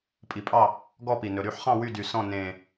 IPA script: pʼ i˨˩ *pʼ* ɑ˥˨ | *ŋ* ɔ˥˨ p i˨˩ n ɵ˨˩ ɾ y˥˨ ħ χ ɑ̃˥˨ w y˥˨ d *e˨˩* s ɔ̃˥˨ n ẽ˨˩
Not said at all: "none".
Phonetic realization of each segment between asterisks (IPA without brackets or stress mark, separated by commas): pʼ, ɡ, y˨˩